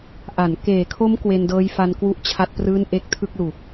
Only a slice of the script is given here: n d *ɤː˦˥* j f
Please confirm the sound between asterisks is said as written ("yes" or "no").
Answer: yes